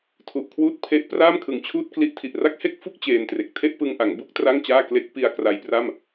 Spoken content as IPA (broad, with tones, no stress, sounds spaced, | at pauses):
tʰ u˨˩ ʔ kʰ w uː˥˩ t̚ pʰ e˦˥ ʔ p r aː˥˩ m kʰ ɯ˨˩ ŋ t͡ɕʰ uː˥˩ t̚ k l i˦˥ ʔ tʰ i˨˩ ʔ r a˥˩ k̚ h e˥˩ k̚ f u˥˩ k̚ t͡ɕ eː˧ n t r e˨˩ k̚ tʰ e˥˩ ʔ p ɯ˧ ŋ ʔ a˩˦ ŋ b u˥˩ k̚ t r a˥˩ ŋ t͡ɕ aː˥˩ k l e˦˥ k̚ p i˧ a̯ k r a˧ j p r a˥˩ m